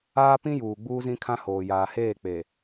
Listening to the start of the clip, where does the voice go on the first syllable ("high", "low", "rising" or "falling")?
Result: high